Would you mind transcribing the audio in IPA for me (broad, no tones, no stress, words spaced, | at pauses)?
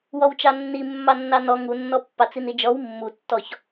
wɔwt͡ʃɑnːi mːɑnːɑnɔ ŋunːɔ pːɑt͡sinid͡ʒɔw mːutːɔç